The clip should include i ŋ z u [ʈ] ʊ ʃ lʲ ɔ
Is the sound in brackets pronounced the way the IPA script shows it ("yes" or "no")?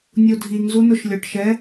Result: no